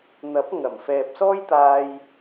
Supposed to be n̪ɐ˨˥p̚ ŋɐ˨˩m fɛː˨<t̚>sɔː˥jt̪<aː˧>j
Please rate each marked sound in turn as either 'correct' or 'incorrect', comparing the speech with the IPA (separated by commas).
incorrect, correct